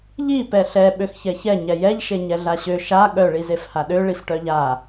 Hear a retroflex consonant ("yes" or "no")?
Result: yes